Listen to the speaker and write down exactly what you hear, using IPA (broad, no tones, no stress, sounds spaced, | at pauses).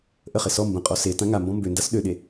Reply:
ʔ ə χ e s ɔ m b ə̃ qʼ ɔ s e t ã ŋ a m b ɔ̃ m b ø n d a s ɗ ø ɗ e